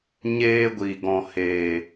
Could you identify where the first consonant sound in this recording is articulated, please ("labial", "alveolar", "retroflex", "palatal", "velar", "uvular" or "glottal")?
palatal